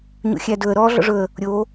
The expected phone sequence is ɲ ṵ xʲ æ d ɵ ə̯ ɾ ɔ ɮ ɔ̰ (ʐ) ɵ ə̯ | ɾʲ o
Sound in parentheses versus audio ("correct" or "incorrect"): correct